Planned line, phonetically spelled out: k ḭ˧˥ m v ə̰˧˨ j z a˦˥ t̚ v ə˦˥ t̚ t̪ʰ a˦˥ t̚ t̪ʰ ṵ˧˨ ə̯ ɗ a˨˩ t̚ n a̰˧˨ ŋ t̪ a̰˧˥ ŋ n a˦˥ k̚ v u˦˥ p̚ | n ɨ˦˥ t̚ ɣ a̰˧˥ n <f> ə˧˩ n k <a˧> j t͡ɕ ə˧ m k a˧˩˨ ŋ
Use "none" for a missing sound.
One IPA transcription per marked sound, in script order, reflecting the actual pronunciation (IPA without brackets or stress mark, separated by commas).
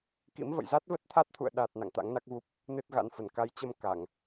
f, a˨˦